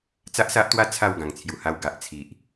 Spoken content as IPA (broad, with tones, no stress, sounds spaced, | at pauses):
t͡s a˦ ʔ s a˦ ʔ t̪ w a˦ t͡sʰ a˥˧ w ɡ ã˨˩ ŋ t͡sʰ j u˨˩ h a˧ w ɡ a˨ ʔ t͡sʰ i˨ ʔ